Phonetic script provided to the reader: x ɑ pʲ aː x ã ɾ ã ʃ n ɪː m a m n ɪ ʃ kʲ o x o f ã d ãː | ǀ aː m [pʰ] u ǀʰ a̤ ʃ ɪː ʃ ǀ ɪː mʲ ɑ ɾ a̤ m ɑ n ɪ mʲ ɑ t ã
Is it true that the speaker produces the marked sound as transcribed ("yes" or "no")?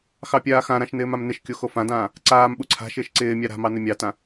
no